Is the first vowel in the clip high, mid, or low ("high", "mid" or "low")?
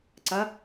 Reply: low